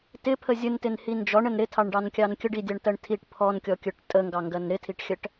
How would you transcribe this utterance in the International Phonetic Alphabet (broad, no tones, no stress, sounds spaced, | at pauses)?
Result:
t ɪ pʰ ə zʲ ə n t ɪ n h i n d͡ʒ ɔ ɳ ə n ɾ ɪ tʰ ɑ ɳ ɖ ɑ n kʲ ɑ n kʲ ə ɖ i dʲ ɑ ɳ t ɜ ɳ tʰ i ʈ pʰ ɔ n kʲ ɔ kʲ ə˞ ʈ tʼ ə ŋ ɡ ɑ ŋ ɡ ɜ n ɾ ɪ tʰ i ʈ xʲ ɜ ʈ